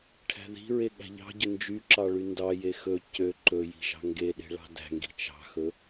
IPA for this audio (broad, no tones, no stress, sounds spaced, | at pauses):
ʈʰ æ̤ ð i̤ ɹ e ɠ æ̤ ʎ ɑ̤ ɟ ɵ n d͡ʒ y ǁ ɑ ɭ y n d ɑ j e x ɵ c ø ǃ ɵ j i̤ ʒ ɑ̤ ŋ ɡ e ɗ e̤ ɭ ɑ̤ d æ̤ ŋ ɡ i̤ t͡ʃ ɑ̤ x ɵ